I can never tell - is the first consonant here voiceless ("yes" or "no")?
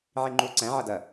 no